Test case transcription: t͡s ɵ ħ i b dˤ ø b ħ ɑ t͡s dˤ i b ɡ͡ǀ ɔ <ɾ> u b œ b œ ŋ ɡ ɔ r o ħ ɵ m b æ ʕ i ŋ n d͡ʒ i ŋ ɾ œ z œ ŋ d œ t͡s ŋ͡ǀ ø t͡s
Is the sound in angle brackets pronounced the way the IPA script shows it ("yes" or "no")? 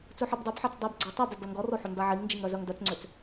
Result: no